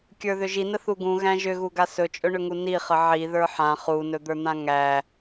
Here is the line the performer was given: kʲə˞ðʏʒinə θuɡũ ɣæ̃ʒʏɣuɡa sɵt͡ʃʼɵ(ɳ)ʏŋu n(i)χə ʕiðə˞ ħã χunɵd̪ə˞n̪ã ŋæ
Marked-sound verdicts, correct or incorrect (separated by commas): correct, correct